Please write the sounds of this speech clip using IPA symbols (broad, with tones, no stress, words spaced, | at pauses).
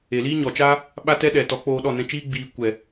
e˨liː˦ɲɔ˨t͡ʃaː˦ | ɓa˦tɛ˦ ɗɛ˨tɔ˨˦k͡poː˧ ɗɔ˦˨nɛ̃˧t͡ʃiː˦ ɡ͡biː˧ kʷɛ˨